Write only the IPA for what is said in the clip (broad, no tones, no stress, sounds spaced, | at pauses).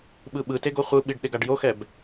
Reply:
ɓ ɯ ɓ ɯ t e ɡ o χʷ ɯ ɓ i ɖ ɗ e ɡ a ɖ j o x ɛ b